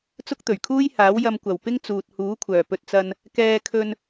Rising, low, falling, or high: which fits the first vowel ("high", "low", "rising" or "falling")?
high